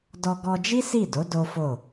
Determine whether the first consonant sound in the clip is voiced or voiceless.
voiced